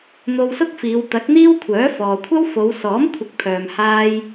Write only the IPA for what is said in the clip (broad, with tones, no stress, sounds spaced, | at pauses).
n̪ o˧ w s ʊ˥ k̚ f iː˨˧ w t̪ ɐ˨˥ k̚ n̪ iː˥ w kʷʰ œː˨˥ f ɔː˨ kʷʰ ɐ˥ w f o˨˧ w s ɔː˨˥ m kʷʰ ɪ˨˥ k̚ pʰ œː˨ m h aː˧ j